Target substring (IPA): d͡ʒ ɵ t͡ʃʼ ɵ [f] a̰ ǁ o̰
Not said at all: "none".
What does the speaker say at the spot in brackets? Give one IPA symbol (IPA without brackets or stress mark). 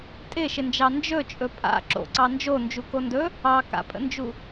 pʼ